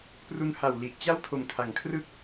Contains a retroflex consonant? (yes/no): no